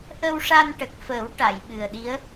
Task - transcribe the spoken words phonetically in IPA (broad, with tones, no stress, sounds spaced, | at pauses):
ʔ ə˧ w ʂ a˧ n ʈ ə˨˩ k̚ f əː˨˩˦ w ʈ a˨˩˨ j ɓ ɨ˨˩ ə̯ ɗ i˧˥ ə̯